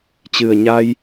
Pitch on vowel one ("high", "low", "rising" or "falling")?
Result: low